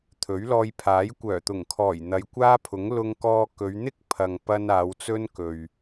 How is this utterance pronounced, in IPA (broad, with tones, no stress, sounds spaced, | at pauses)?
t̪ʰ ɵ˨˥ ɥ l ɔː˧ j pʰ aː˨˥ j kʷ œː˨˩ t̪ ʊ˨˩ ŋ kʰ ɔː˨˩ j n̪ ɐ˨˧ j kʷ aː˥ pʰ ʊ˨˥ ŋ l ʊ˧ ŋ k ɔː˧ k ɵ˨˧ ɥ n̪ ɪ˥ k̚ pʰ ɐ˨ ŋ p ɐ˧ n aː˨˧ w t͡s ɵ˥ n k ɵ˨ ɥ